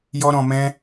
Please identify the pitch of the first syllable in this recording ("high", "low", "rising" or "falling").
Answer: high